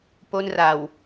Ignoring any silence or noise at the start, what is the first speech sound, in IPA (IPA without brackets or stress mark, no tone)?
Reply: p